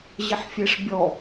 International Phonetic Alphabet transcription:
ʑ ɪ ħ fʲ e ʂ bʲ ɔ

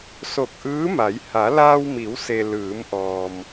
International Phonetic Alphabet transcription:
s o˧˩ k̚ ʔ ɯː˧˥ m a˩˧ j h a˩˧ l aː˧ w m i˩˧ w s e˩ l ɯː˩˧ m ʔ ɔː˩ m

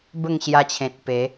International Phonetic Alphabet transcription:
b ə˥˧ ŋ ɕ j a˧ t͡ɕʰ ẽ˨ t̚ p e˨˦

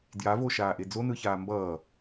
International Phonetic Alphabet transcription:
d j a v o ʃ aː ʔ e d͡z o n ɯ ç aː m b ʌː

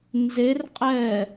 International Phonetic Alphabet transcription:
n z e r qʼ ɛː

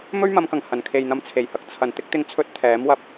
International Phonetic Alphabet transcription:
m ɵ˥ ɥ m ɐ˨˧ m k ɐ˨˩ ŋ h ɐ˨˩ n kʰ e˨ j n̪ ɐ˧ m t͡sʰ e˨˩ j h ɐ˨ k̚ t͡sʰ ɐ˨˩ n t̪ ɪ˥ k̚ t̪ ɪ˧ ŋ t͡sʰ ɵ˥ t̚ t̪ʰ ɛː˨˥ m w ɐ˨ p̚

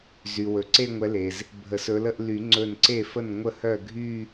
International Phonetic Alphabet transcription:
z y˩ w ɵ˩ ǀ e˥˧ ŋʷ ɛ˨˦ l e˩ z | bʱ ə˨˩˦ s ɵ˨˦ l ə˥˧ ʔ l y˨˩˦ ŋ͡ǀ ɵ˧˩ n ǀ e˥˩ f ə˥˩ n ŋʷ ə˥˩ h œ˥˩ ɡʱ y˥˧

